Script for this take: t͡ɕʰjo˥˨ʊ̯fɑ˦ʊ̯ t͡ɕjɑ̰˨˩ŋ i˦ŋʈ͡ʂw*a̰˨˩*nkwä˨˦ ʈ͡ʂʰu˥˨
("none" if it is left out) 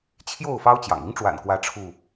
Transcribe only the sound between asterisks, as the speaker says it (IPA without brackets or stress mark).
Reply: a̰˨˩